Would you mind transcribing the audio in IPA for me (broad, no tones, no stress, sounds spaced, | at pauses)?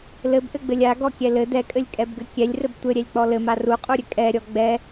l ɘ b ʔ ɘ ɡ͡b ɘ lʲ a ɡ ɔ kʲ ɛ l ɘ d ɛ kʼ ɘ lʲ kʼ ɛ b ɡ ɘ kʲ ɛ lʲ r ɘ b tʷ ɘ ɾʲ ɛ lʲ k͡p ɔ l ɘ m a r u qʼ u ɾʲ ɘ kʼ ɛ ɾʲ ɔ ɡ͡b ɛ